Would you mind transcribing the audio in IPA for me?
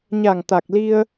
ɲa˨˩ŋ t̪a˨˩k̚li˧ə̯

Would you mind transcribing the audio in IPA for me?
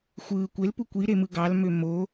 xʷɯː kʷelpu kʷiɾe mɯɡɑlmø mo

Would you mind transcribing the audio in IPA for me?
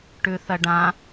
ʈʉθɐɖã

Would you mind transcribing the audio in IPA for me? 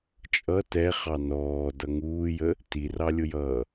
t͡ʃʼʌ tɛχɑ nɔːdʌ ŋuːjə | tirɑlʲʊjʌː

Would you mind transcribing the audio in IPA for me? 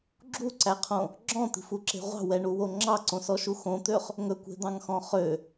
ɡ͡ǁuǀæqʰõ | ɡ͡ǁɔ̃t̪i̤fuǁe̤ ʁʷɑ̤wɛɳuwo ŋ͡ǁɑǀõsɔʃu xõt̪øχ | ŋɵkʷe̤d̪ɑ̃ŋxɔ̃ χø

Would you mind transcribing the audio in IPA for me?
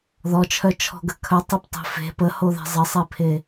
ðɔt͡ʃʰœt͡ʃʰɔ̤ɡə kʰœtˤeptˤe̤ fe̤ pəhoðɛ̤ zˤəsˤepʰe

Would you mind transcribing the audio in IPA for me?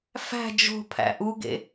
fæ̤ d͡ʒo̤ pʰæ̰ʔuɡḛ

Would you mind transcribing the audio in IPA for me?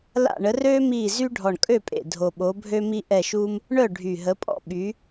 la̰˦˨ɳə˨˦røː˥ miː˦˨zy˥ ɖʱɔ˨˩ɳkʼø˦˨pʼḛ˨˩ dʱo˨˩ɓo˨˦bʱø˥mi˥ ʔɛ˦˨ʃuː˥m | ɳœ˦˨ ɖʱy˨˩ɦə˨˦pʼɔ̰˥ ɓy˨˦

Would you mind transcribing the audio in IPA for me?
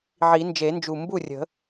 ʕi˨˩˦nd͡ʒe˨˩˦nd͡ʒu˨˩ mbu˥˩rʲə̤˨˩˦

